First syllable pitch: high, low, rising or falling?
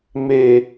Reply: low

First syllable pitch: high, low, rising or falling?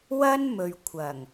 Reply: high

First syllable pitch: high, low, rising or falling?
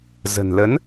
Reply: low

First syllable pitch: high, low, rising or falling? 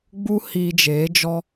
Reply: high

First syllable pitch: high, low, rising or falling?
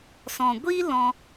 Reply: low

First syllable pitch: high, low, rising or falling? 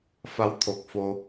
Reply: rising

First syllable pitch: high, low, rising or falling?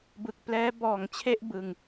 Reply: low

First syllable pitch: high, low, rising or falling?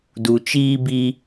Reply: low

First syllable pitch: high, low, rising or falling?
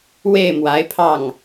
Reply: falling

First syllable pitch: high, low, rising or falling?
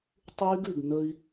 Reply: high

